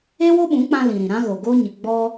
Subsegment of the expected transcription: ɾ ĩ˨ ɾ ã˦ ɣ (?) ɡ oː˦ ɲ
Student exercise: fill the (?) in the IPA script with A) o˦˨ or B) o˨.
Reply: B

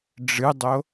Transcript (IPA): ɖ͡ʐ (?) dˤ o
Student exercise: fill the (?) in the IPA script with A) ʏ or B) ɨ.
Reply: B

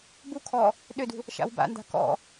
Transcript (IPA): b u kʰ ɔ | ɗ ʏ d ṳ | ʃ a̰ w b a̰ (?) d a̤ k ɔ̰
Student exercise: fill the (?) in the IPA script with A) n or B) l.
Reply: A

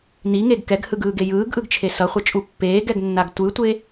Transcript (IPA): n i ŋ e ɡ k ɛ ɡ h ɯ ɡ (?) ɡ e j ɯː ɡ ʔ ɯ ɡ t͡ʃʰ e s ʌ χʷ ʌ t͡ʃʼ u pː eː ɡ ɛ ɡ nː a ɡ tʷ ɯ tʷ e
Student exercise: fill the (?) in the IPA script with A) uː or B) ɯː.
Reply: B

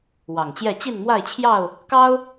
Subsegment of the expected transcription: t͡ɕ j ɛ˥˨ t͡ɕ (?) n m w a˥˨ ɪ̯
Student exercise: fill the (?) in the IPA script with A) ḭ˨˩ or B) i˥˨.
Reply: B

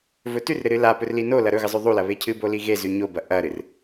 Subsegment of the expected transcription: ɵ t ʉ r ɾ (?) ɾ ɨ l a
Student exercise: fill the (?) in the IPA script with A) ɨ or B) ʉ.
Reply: A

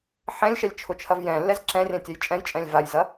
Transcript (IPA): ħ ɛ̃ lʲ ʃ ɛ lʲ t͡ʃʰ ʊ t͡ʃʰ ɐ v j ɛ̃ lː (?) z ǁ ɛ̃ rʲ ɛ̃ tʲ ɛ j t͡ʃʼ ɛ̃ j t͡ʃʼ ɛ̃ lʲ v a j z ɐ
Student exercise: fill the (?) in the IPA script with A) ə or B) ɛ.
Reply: B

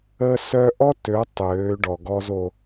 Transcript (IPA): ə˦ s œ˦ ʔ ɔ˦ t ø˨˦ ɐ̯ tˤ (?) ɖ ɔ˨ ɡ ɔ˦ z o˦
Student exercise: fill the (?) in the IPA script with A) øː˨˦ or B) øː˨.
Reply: A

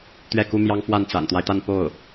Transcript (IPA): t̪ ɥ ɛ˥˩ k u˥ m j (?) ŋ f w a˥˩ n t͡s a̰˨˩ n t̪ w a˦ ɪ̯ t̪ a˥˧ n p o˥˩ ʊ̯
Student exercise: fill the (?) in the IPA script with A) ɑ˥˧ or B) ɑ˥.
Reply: B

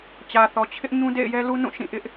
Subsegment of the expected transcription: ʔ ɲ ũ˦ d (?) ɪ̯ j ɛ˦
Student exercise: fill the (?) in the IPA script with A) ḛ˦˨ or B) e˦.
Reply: A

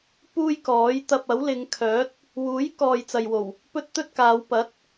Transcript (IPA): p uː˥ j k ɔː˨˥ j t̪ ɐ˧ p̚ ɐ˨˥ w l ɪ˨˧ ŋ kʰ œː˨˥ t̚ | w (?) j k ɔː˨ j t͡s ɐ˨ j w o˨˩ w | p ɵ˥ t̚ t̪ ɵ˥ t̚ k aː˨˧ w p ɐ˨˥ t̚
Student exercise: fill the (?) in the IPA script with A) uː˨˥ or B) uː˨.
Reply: A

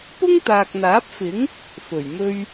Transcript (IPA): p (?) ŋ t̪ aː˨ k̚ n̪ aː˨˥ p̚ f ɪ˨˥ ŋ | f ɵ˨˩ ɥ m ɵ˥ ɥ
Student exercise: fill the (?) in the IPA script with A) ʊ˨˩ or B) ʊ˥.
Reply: B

